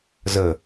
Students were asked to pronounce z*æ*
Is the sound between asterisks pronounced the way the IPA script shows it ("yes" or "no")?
no